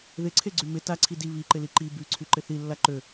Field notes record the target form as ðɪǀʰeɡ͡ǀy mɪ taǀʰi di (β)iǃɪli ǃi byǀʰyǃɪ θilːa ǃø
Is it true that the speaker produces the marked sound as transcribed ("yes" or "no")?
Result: yes